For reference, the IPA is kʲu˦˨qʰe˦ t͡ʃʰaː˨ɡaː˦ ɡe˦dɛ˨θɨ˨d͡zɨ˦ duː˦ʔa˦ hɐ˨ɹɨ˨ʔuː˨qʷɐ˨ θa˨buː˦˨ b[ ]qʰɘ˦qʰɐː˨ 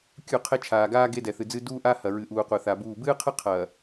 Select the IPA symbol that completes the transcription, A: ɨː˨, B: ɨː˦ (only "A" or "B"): B